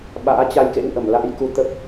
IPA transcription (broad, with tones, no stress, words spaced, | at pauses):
ɓa̰ː˧˥t͡ɕa˧jkḛ˧˥wʔə˧˩m la̰ː˧˥jku˨˦ t̪ə˦˥p̚